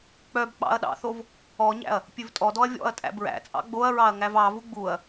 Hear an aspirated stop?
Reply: no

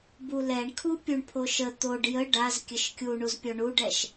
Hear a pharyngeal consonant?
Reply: no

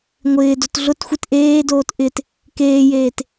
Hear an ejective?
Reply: no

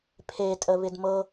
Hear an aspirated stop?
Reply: yes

